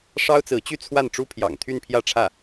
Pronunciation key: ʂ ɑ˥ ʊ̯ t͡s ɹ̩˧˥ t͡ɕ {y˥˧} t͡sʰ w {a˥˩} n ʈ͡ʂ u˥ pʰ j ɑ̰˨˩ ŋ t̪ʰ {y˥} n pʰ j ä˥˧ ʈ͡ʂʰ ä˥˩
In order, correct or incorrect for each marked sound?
correct, correct, incorrect

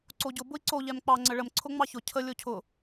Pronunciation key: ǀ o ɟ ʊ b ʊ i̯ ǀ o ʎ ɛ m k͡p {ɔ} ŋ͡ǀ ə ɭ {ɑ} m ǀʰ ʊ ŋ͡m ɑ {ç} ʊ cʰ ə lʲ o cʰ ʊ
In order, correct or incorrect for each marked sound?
incorrect, incorrect, correct

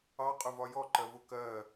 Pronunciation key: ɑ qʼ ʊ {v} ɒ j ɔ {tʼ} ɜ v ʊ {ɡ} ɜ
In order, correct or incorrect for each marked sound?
correct, incorrect, incorrect

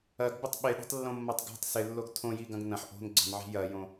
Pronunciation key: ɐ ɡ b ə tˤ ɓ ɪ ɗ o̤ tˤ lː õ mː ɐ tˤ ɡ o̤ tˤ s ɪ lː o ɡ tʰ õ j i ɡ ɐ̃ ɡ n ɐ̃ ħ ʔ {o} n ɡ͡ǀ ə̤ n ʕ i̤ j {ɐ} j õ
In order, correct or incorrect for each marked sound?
incorrect, correct

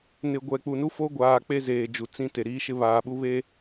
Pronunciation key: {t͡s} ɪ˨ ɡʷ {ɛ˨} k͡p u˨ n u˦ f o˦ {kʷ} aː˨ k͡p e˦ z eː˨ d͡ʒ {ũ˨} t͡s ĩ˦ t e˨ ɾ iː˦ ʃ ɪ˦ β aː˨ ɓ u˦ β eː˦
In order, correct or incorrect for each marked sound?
incorrect, correct, incorrect, incorrect

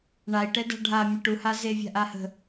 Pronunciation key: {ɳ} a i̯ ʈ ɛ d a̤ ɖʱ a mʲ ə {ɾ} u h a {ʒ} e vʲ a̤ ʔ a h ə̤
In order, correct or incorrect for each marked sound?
correct, incorrect, incorrect

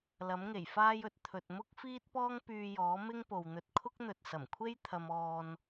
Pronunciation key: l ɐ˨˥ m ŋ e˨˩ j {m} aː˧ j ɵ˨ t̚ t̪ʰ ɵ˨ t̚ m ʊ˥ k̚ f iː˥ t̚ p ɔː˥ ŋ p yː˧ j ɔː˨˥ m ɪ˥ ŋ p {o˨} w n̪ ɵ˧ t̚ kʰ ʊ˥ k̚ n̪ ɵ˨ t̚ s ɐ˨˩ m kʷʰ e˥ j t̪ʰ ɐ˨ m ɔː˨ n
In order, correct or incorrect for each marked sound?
incorrect, correct

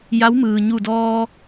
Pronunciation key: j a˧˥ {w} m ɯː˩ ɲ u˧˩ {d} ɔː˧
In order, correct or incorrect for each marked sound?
correct, correct

